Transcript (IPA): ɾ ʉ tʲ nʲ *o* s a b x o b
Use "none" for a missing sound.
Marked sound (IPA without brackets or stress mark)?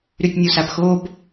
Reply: u